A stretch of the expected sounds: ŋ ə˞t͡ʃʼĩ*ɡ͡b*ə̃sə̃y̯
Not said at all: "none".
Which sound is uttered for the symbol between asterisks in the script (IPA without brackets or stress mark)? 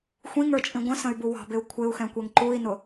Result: ɡʷ